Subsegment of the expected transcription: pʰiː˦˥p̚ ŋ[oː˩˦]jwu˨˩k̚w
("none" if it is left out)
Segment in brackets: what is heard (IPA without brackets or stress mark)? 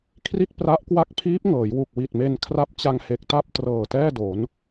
ɤː˩˦